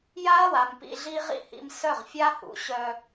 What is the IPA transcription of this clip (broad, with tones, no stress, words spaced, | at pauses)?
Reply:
ja˦ɐ̯wa˨m pḭ˧ɮi˦ʁḭ˦hḭ˧m sœ˦˨ʁfʲa˦hṵ˨ ɕœ˧